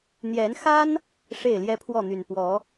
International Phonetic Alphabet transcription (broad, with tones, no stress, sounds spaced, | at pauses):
n̪ j ɛ˨˦ n x a˦ n | ʂ e˥˨ ɪ̯ l j ɛ˦ pʰ w ɔ˥˨ n̪ y˨˩ n p w ɔ˨˦